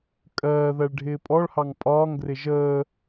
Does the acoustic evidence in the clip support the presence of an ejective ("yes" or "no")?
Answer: yes